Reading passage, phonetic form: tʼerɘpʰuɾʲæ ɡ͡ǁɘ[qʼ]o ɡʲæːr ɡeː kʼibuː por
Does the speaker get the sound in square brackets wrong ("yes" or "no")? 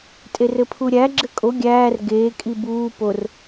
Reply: yes